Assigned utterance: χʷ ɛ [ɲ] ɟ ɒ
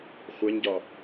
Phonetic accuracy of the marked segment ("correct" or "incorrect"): correct